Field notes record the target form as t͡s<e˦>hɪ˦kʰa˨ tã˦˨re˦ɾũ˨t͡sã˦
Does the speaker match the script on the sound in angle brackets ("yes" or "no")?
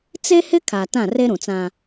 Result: yes